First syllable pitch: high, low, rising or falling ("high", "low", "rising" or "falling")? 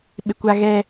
low